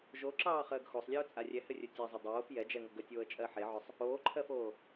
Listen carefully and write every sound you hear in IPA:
ʒ o ǁ ɑː χ əː ɡ x o sˤ lʲ ɜ ʊ̯ t͡sʼ a rʲ ɛ h ɘ rʲ ɵ tʲ a zˤ ə dˤ oː f j ɛ d͡ʒ ɛ ŋ o ɡ ə tʲ oː ə̯ t͡ʃʼ ɜ ħ e ʕ ɵ sˤ | oː ǃʰ ɜ f oː

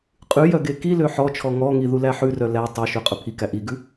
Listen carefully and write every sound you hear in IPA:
qʼ ʉ j œ ɡ e k i l ø ħ ɔ t͡ʃʰ ɔ ŋ ɔ ŋ i ð u l æ ħ ʉ r œ l æ tˤ ɑ ʃ ø qʼ ɵ pʰ i k æ ʔ i ɡ ʉ

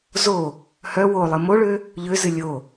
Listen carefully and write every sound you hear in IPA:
z o | h œ w o lˠ ɨ m o ɭ ø | ʎ ø z ɨ lʲ o

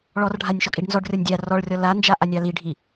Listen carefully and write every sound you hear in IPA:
ɭ ɔ r ɖʱ a nʲ ʃ ɔ kʼ i ɖ n z ɔ ɖ rʲ ɔ nʲ dʲ a r ɔ ɭ rʲ ɔ l a n d͡ʒ a ʔ a nʲ ɑ l i ɖʱ i

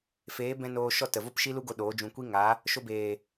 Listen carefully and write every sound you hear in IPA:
f eː˨˦ b ɛ̃˧ n oː˧ ʃ ɔ˦˨ t ə˨ v o˦ p ʃ i˦ l u˦ ɡ o˧ ɗ oː˨˦ d͡ʒ ũ˧ kʷ i˦ ŋ a˨˦ | ʃ o˧ b eː˨

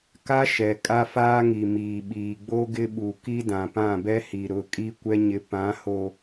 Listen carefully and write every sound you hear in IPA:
k a˦ ʃ ɛ˨ kʼ a˦ f aː˦ ŋ i˨ m iː˨ ɓ iː˨ ɡ͡b o˦ ɡ ɪ˦ ɓ u˨ k i˦ d ã˨ p ã˦˨ b ɛ˦ h i˨ ɾ ʊ˨˦ kʼ i˦ kʷ ɛ˦ ɲ ɪ˨ p ã˨˦ h o˨

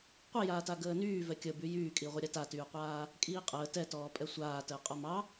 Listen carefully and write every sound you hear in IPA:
qʷ i j aː t a ɡ əː n yː v ɛ kʲ ə b y j yː kʼ i ʁʷ ə ɾʲ a t a t yː qʷ aː | kʼ iː qʼ əː t ɛ t ɔː pʼ ɛ sʷ aː t əː qʼ ɔ m ɑ

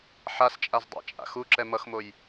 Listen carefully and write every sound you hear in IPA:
ħ a s t͡ʃʼ a z dˤ a̰ t͡ʃʼ a̰ x u ǁ ɛ m ʌ x m o j

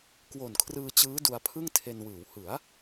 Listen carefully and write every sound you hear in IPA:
k w o˨˩ n kʰ r ɯː˧ t͡ɕ ɯː˦˥ d u˧ a̯ pʰ ɯ˥˩ ŋ tʰ e˧ n w ɯː˩˦ w h ɯ˩˦ a̯

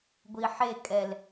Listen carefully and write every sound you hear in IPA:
ɡʷ i ħ e kʼ ɛ l

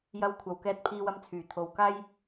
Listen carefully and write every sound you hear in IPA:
j ɐ˧ w kʷʰ ɐ˨ w k ɛː˧ t̚ pʰ iː˧ w ɐ˧ m t͡sʰ yː˨˩ t̪ʰ o˨ w k aː˥ j

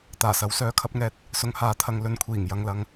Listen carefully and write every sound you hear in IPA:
t̪ aː˨˩ s ɐ˨˥ w s œː˨˧ kʰ ɐ˧ p̚ ŋ ɛː˧ t̚ | s ʊ˨˧ ŋ h aː˨˥ t̪ʰ ɐ˨˧ ŋ l ɵ˨ n kʷʰ iː˨˩ ŋ j ɐ˨ ŋ l ɐ˨ ŋ

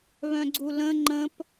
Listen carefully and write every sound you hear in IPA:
β œ̃ ɡ͡ǀ u l ə̃ ŋ͡ǃ ə̃ p

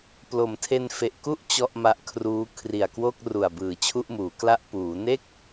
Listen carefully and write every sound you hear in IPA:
p l o˩˦ m tʰ e˧ n f e˨˩ ʔ k u˥˩ ʔ t͡ɕ ɔ˥˩ ʔ m a˦˥ ʔ kʰ r uː˦˥ kʰ r i˨˩ a̯ k w o˥˩ k̚ r u˨˩ a̯ b ɯː˨˩ t͡ɕʰ u˥˩ ʔ m uː˩˦ k l a˥˩ ʔ p uː˩˦ n e˥˩ k̚

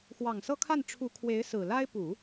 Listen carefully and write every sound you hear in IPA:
x w ɑ˨˩ ŋ s ɤ˥ kʰ a˥˩ n ʈ͡ʂʰ u˧˥ kʰ w e˧˥ ɪ̯ s ɹ̩˨˩ l a˥ ɪ̯ p u˨˩˦

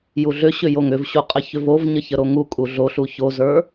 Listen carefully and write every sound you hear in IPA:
j u ɮ ʏ ɕ ʏ j o ŋ ʏ v ɕ u qʼ ə ç ʏ v o v ɲ ə ç ə ɾ o ŋ u kʼ u ɮ o ɬ u ç o z ə˞

